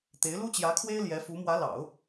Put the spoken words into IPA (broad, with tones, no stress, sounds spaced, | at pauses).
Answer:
t̪ e˧˥ ɪ̯ l u˥ t͡ɕ j ä˧˥ kʰ w e˥ ɪ̯ l j ɛ˧˥ f u˧˥ m w ä˧˥ l ɑ̰˨˩˦ ʊ̯